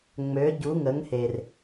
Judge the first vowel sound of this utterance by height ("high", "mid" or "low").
mid